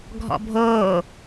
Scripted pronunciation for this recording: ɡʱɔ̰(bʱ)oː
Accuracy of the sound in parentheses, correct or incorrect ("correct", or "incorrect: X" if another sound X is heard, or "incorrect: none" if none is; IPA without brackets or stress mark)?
correct